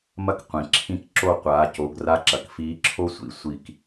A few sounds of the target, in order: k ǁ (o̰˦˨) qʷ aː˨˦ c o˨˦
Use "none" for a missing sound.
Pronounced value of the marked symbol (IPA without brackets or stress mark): o˦˨